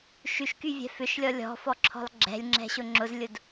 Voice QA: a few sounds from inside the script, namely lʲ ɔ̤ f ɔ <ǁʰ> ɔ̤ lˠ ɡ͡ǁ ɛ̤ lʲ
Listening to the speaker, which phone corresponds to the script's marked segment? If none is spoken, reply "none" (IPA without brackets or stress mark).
ǁʰ